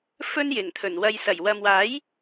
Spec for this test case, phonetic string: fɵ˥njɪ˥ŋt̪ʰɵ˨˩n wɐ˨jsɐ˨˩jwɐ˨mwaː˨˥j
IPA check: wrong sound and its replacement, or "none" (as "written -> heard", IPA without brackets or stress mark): ɪ˥ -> ɪ˨˩